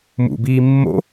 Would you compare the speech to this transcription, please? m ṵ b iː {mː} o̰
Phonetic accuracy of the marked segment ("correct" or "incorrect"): correct